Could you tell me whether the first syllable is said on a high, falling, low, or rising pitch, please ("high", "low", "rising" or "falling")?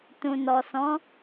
low